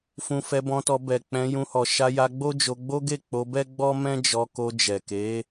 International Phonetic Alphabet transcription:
f ũ˧ f ɛ˧ b ɔ̃˧ t ɔ˧ b ɛ˨ k͡p ɛ̃˧ j ũ˧ h ɔ˨ ʃ a˧ j a˧ ɡ͡b o˦ d͡ʒ o˧ ɡ͡b o˦ ɡ e˦˨ k͡p o˧ b ɛ˦ ɡ͡b ɔ˦ m ɛ̃˦ d͡ʒ ɔ˧ k o˧ d͡ʒ ɛ˨ k e˨˦

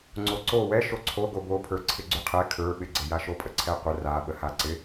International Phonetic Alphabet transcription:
ŋ͡ǀ o ǀ o w ɛ ʃ o ǀʰ o ɡ o b o pʰ ə˞ ǀʰ ɪ ɡ͡ǀ y qʰ ɛ kʰ ə˞ ɓ ɪ ɡ͡ǀ ɪ j a ʃ o pʼ ə ǀʰ ɛ qʷ ə r a ɓ ə h a ǀ ɪ

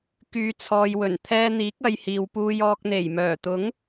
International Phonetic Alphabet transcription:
k yː˨˧ t͡sʰ ɔː˨ j w ɵ˨˩ n t̪ʰ ɛː˧ n̪ iː˨˥ k̚ ɐ˧ j h iː˨ w p uː˧ j ɔː˧ k̚ n̪ e˨˩ j m œː˨˩ t̪ ʊ˨˥ ŋ

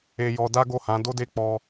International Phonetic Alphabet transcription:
e˧ j ɔ˧ d a˦ ɡ o˦˨ h ã˨˦ d o˦ d e˦˨ k͡p ɔ˧

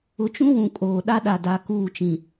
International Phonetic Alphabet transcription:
ʊ˨˦ t͡ʃ ũ˦ w ũ˨ kʼ oː˨ ɗ a˦ ɗ a˨ d a˨ k uː˦˨ t͡ʃ ĩ˨

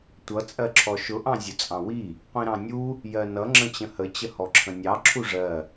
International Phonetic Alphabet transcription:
tʷ ʌ t͡sʼ ɜ ǁʰ ɔ ʃ ʊ ʔ ɑ̃ zʲ ʊ t͡sʼ ɑ̃ w i | qʷ ĩ ɾ ɑ̃ nʲ u | j ɜ n ʌ ŋ͡ǁ ə̃ t͡ɕ ə̃ h ə t͡ɕ ə h ɔ ǁʰ ə̃ nʲ ɑ ǁʰ u ʐ ɜ

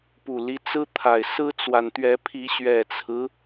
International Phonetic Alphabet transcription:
p u˨˩ l i˦ t͡s ɹ̩˦ t̪ʰ a˨˩ ɪ̯ s ɹ̩˦ t͡s w a˨ n t̪ ɥ ɛ˨˦ pʰ i˨˦ ɕ ɥ ɛ˨˩ t͡sʰ ɹ̩˦

